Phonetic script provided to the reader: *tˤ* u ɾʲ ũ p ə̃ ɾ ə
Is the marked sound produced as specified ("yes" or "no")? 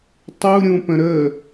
yes